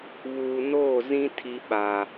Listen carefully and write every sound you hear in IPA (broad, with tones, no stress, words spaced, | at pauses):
βuː˨noː˦˨zĩ˦ tʰi˦ɓa˨